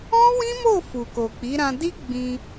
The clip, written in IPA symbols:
ɔ̃˦ w ĩ˦ m o˦˨ f u˨ k o˨ k͡p i˨˦ ɾ ã˧ d i˦ ɡ͡b ĩ˧

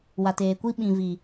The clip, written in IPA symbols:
w a˨ t eː˨ kʷ i˦ ɓ ĩ˨ v i˨

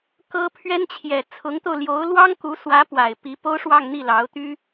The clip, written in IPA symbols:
k ɤ˥ pʰ ɥ ɛ˥ n t͡ɕʰ j ɛ˨˩ t͡sʰ ʊ˧˥ ŋ t̪ o˧ ʊ̯ l j o˧˥ ʊ̯ l w ɑ˥ ŋ k u˧˥ s w ä˧˥ p w a˨˩ ɪ̯ p i˧˥ p o˥ ʊ̯ ʂ w ɑ˥˧ ŋ n̪ i˥˩ l ɑ˧˥ ʊ̯ t̪ y˥

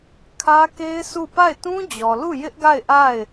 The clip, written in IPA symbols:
kʰ ä˦ k e˦ ɪ̯ sʰ u˦˨ p a˦˨ ɪ̯ t ũ˦ d͡ʑ ɔ˨ l u˦˨ j ɪ˦ ʔ ɡ a˦˨ ɪ̯ ʔ a˦˨ ɪ̯

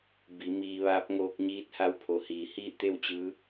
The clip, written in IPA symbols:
b i˩˧ m iː˧ ʋ aː˧˥ p̚ ŋ oː˧ k̚ ɲ iː˧˥ t̚ h a˧˥ w pʰ o˩˧ h iː˩ h iː˥˨ t̪ e˥˨ w t͡ɕ ɯː˧˥

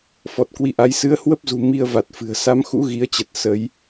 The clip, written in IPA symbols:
f ɔ˨˩ t̚ k w i˨˦ ʔ a˨˦ j s ɨ˨˦ ə̯ h w ə˦˥ p̚ z ṳ˨˩ m i˧ ə̯ v a˨˩ t̚ f ɨ̤˨˩ ə̯ s a˨˦ m x ṵ˧˥ ɣ i˨˦ ə̯ t͡ɕ ə˨˩ t̚ s ə˨˦ j

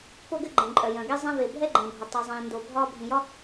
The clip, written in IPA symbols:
p o˥ ɡ ɘ˥ ɡ͡ǃ ɛ̃˩ ǃʼ œ˩ j œ̃˩ ɡ ɛ˥ zˤ ɛ̃˥ v e˩ bʱ ɛ˥ ɡ͡ǃ ɛ̃˩ bʱ ə˩ tˤ i˩ zˤ ĩː˩ n d o˩ bʱ ɒː˥ bʱ ĩ˩ j ɒ˥

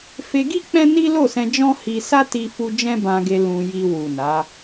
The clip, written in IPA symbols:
f e˧ ɡ i˦ k͡p ɛ̃˦ n i˦ l o˦˨ s ɛ̃˧ d͡ʒ ɔ̃˦ h i˧ s a˦ t i˧ f u˧ d͡ʒ ɛ̃˦ b ã˧ ɡ e˧ l ũ˧ j i˧ w u˨ n a˨˦

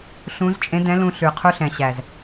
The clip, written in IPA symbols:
ɬ ũ˨˦ z t͡ʃʼ ẽ˨˦ d ɛ̃˨˦ l ũ˧ ɬ ʉ˨ qʰ u˧ ɬ ɛ̃˨ ɕ æ˨ z

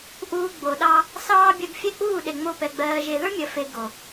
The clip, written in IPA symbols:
ʔ uː˧ ɡ͡b o˨ ɗ ɑ˦ | s ɑː˧ bʲ ɜ˨ ɡ fʲ ɛ˦˨ k͡p uː˦˨ ɗ e˨ ŋ͡m o˧ p ɛ˨ ɡ͡b ɜː˨ ʒ e˨ ð ə˞˦ mʲ ɜ˨ f e˨ ɡ o˨

